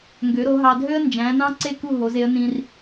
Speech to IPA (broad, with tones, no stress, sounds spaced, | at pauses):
ŋ ɡ ø˩˥ ɾ o˩˥ ɦ ɑ˧ dʱ ø˥ ə̯ n d͡ʒ æ̃˩˥ n ɑ̃˥ ǀ e˥˩ k u˥˩ ɦ o˩˥ z e˩˥ ə̯ n ĩ˧ r